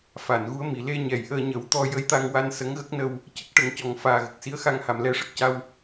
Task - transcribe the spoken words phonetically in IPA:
f a˨˩˨ n ɣ u˧˥ ə̯ m i˨˩˨ l e˧ ɲ ɛ˨˩˨ j ʔ əː˧ ɲ ə˨˩˦ w t̪ ɔ˧ j ə˧˥ j t̪ a˧ ŋ w a˧ n s ə˧˥ ŋ ɣ ə˦˥ k̚ n ə˧ w | c ə˦˥ k̚ ʈ ə˨˩˦ ŋ c ɔ˨˩ ŋ f aː˨˩ ɣ ə˨˩ k̚ s i˧˥ ə̯ x a˧ ŋ h a˨˩ m l ɛ˧ ʂ ə˨˩ k̚ c a˧ w

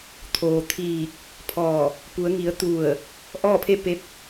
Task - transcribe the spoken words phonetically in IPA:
t̪ʰ oː˩ t̪ʰ iː˧˩ k̚ | pʰ ɔː˧˩ | p u˩˧ ə̯ ŋ i˩˧ ə̯ t̪ u˧˩ ə̯ | ʔ ɔː˥˨ pʰ e˥˨ p e˧˥ p̚

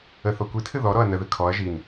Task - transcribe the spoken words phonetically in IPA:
ə θ ɔ kʷ i tʰ ɨ ð ɔ ɾ ɔ ɐ̯ n ə ð ɨ kʰ ɔ ɐ̯ ʒ i n

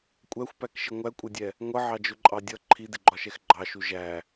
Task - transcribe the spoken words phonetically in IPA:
kʷʼ æ xʷ p æ k ʃ ɪ ŋʷ æ kʷʼ ʌ dʲ ɛ | ŋʷ ʌ ʕ ɑ d͡ʒ ʊ ǃʼ ɑ dʲ ʌ ǃʰ i d ɪ ɡ͡ǃ ɒ ʃ ɛ x ɡ͡ǃ ɑ ʃ u ʒ æ

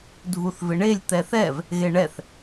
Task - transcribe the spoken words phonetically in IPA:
dʱ u θ v ɪ ɳ e lʲ t̪ ɛ θ ɛ v | ɣ e ɳ ɛ θ

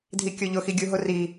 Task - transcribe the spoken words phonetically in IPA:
dʱ i kʲ o ʎ ʊ x i ɡʲ u ɦ ʊ r i

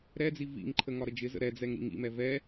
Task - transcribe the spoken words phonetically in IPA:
ɾ ɛ d͡z i v ḭ ŋ ǃʰ ə ŋ ɒ ɾ ə d͡ʒ ɪ z ə̰ ɾ ɛ d͡z ɛ ŋ ɾ ḭ ŋ ḭ m ɛ v ɛ

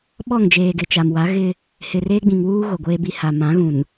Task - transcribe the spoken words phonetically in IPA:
ɓ ɔ˦˨ ŋ d͡ʒ eː˨ ɡ ɪ˨ t͡ʃ a˨ m w a˨˦ ɣ ɪ˦ | h ɪ˨ r eː˦ ɡ͡b ĩ˨ ŋ w uː˦ ɣ o˨ ɡʷ eː˦ b i˦ h a˨ m ã˨˦ ɣ ũ˨ n

